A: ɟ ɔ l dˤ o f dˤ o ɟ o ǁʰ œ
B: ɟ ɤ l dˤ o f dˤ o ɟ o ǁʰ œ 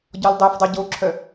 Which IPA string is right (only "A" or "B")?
A